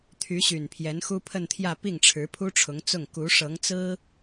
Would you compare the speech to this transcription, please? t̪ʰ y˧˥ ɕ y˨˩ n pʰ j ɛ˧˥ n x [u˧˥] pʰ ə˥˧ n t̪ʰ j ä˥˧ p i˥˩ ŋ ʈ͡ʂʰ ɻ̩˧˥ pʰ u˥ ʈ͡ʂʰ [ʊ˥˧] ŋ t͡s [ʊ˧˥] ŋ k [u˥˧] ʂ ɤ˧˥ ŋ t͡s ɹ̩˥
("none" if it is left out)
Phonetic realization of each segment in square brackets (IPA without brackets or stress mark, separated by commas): u˥, ʊ˧˥, ʊ˥˩, u˧˥